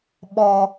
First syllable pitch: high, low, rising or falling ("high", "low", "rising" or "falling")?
high